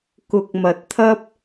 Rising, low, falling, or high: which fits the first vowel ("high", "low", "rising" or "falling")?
low